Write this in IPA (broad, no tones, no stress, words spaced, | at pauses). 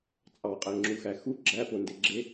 t͡sʼɑqʼæŋ͡ǁuxæ xu ɡ͡ǁæpondeɡ͡ǁe